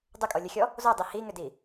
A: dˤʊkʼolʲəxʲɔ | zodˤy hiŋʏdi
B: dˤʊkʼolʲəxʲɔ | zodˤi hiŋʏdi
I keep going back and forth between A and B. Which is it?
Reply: B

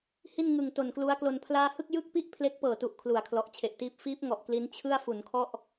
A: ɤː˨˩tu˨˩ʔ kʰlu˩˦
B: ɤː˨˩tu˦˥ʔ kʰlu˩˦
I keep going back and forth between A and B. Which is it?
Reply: A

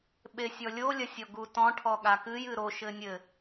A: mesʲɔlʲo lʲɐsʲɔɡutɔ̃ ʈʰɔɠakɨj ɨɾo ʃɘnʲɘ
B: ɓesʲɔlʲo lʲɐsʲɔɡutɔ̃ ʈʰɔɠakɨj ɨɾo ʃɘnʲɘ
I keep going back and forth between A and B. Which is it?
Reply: B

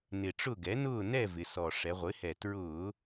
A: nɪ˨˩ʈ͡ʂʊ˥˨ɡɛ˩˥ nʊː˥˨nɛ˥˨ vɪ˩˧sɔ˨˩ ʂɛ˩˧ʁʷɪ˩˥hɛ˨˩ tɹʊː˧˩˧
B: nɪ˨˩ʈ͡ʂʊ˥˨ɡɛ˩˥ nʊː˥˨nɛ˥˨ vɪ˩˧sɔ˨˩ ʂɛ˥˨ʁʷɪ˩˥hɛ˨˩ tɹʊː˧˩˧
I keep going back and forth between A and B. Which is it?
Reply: A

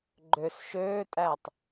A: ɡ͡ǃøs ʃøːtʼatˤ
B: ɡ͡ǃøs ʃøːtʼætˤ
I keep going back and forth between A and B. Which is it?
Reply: B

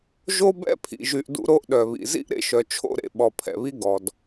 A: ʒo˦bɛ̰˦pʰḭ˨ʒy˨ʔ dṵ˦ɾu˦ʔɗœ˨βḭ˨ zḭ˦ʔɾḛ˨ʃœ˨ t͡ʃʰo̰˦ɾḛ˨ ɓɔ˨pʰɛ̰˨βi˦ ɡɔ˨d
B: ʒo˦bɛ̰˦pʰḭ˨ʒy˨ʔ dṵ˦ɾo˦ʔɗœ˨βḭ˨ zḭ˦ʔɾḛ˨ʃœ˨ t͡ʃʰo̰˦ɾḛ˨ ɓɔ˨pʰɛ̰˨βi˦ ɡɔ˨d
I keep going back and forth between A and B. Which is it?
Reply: B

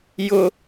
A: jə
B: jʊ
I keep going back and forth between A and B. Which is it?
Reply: B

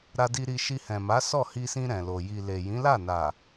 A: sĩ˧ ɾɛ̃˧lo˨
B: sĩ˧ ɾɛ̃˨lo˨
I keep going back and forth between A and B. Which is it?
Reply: B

